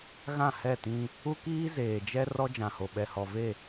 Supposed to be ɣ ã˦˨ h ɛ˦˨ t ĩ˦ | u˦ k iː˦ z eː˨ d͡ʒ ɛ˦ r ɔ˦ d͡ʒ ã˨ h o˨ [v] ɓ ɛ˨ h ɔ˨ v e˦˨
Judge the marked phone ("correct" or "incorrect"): incorrect